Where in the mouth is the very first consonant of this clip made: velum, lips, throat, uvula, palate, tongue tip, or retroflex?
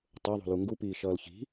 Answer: tongue tip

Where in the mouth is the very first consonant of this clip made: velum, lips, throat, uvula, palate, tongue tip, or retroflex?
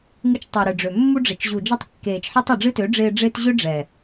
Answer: velum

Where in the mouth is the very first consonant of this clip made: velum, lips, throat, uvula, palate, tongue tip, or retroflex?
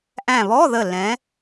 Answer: throat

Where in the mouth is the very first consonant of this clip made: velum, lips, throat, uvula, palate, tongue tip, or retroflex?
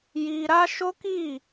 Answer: palate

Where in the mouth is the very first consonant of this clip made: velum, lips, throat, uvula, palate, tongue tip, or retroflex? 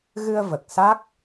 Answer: velum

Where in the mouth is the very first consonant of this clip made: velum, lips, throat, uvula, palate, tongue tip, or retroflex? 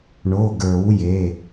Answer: retroflex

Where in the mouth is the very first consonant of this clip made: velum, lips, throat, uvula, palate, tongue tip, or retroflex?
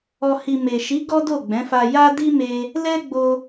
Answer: throat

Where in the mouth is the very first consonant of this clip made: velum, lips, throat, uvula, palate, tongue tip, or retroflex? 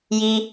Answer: palate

